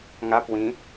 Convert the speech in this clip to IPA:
ŋ a p w ĩ

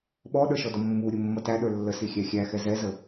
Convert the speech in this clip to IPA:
ɓ ɔ ɗ ə˞ ʃ ɔ d ɔ mː u ɾʲ ʊ mː ʌ t æ ɗ ə˞ lː ə s i xʲ æ xʲ æ x ɛ z ɛ z ə

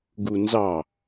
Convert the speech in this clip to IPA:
ɡ u n z ɑ

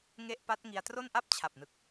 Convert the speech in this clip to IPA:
ŋ e˥˩ ʔ p a˦˥ t̚ ŋ i˧ a̯ t r o˥˩ n ʔ a˥˩ p̚ t͡ɕʰ a˨˩ p̚ n ɯ˨˩ k̚

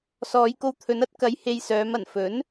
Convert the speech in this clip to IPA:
s ɔː˨˧ j k o˧ w t̪ʰ ɵ˨˧ n ɐ˥ t̚ k ɐ˨˧ j h e˧ j s œː˨˧ m ɐ˨˩ n f ɵ˨˥ n

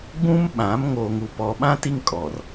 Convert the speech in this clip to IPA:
ɡ͡b ũ˦ m ɓ ã˨˦ m ŋ o˨ ŋ u˨ p ɔ˨ ɓ ã˦ t i˦ ŋ kʼ ɔ˨ r

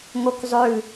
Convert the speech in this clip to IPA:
ŋ o k zˤ ʉ

